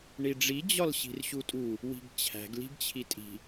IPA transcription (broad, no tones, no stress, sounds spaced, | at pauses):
ɳ i ɖ͡ʐ i d͡ʑ ɒ l ɕ i̤ r ɕ u tʼ u | w i̤ ɡ t͡ɕʰ æ̤ ɡ l i̤ ɡ t͡ɕʰ i tʼ i̤